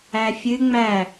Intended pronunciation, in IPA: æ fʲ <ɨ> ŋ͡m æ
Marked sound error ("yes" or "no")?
no